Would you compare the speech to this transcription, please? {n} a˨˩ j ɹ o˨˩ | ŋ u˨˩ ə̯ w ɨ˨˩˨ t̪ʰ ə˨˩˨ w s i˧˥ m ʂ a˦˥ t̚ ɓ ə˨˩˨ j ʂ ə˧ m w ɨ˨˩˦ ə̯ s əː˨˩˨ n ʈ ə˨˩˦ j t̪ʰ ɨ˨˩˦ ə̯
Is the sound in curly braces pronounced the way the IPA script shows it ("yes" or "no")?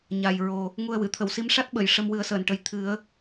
no